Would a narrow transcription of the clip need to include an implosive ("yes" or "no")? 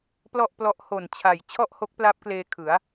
no